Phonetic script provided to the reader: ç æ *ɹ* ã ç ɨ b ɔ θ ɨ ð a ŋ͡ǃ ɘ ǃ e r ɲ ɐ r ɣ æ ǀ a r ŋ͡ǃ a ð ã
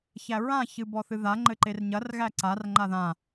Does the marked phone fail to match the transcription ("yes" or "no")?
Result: no